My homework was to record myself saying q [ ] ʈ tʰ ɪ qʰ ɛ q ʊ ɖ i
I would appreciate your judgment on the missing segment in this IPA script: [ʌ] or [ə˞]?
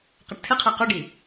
ʌ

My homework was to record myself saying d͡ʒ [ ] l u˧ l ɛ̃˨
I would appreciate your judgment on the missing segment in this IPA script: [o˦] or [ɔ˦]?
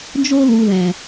o˦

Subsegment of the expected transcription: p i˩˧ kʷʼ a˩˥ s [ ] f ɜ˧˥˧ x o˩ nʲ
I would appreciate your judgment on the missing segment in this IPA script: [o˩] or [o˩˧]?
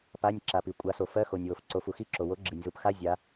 o˩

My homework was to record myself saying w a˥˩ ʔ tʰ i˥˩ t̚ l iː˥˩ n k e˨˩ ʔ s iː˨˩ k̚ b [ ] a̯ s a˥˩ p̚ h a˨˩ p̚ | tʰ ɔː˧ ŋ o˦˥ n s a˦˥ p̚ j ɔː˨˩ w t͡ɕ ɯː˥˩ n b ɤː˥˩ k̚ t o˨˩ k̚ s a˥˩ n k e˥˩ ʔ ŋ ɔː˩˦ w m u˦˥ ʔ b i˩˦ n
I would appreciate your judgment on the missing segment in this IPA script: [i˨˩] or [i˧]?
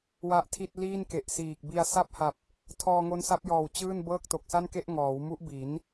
i˧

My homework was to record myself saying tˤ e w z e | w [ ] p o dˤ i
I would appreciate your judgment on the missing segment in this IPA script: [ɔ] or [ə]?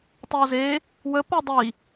ə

